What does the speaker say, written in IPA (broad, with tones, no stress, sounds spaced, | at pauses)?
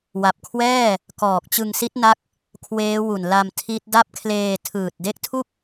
w a˨˩ p̚ kʰ w ɛː˥˩ | k ɔː˨˩ k̚ t͡ɕ ɯ˧ ŋ s i˦˥ t̚ n a˦˥ k̚ | kʰ w eː˦˥ w u˨˩ n l a˧ m tʰ i˦˥ t̚ d a˥˩ p̚ kʰ l eː˧ tʰ ɯː˨˩ t̚ d e˦˥ k̚ tʰ u˥˩ k̚